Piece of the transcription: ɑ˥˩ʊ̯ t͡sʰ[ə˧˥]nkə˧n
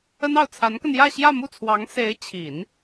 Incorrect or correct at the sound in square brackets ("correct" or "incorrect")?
incorrect